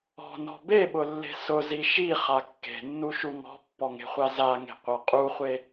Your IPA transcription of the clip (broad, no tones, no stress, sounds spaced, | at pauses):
ɔ̤ n ɔ̤ b e ɓ ʊ lː e̤ s ʊ z i ʃ i χ a kː e̤ nː u ʃ u ŋ ɔ̤ pː ɔ ŋ e̤ χʷ a z a ŋ e̤ qʷ a qʼ u χʷ e